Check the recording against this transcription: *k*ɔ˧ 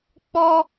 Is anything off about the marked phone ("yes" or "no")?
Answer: yes